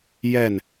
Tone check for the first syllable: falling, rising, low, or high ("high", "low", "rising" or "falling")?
falling